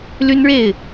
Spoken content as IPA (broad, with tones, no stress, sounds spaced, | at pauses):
l y˥ n ɻ e˥˩ ɪ̯